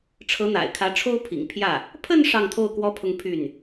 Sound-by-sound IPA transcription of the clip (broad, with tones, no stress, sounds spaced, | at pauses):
ʈ͡ʂʰ ɤ˧˥ n̪ a̰˨˩ ɪ̯ kʰ ä˧˥ ʈ͡ʂʰ o˥ ʊ̯ pʰ ḭ˨˩ ŋ pʰ j ä˥˩ | pʰ ə˥˧ n ʂ ɑ˥˧ ŋ t̪ʰ o˥˩ ʊ̯ k w ɔ˥ pʰ ʊ˥˧ ŋ pʰ y˥˩ n